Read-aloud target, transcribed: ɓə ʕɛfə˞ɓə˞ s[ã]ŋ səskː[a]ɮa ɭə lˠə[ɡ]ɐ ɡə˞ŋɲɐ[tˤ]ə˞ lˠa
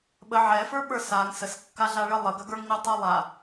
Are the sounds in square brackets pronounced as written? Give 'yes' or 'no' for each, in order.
no, yes, yes, yes

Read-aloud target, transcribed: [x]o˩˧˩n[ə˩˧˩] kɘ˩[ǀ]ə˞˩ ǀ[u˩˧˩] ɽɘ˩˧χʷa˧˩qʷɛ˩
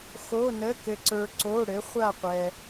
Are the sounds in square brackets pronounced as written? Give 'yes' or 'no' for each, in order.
yes, yes, yes, no

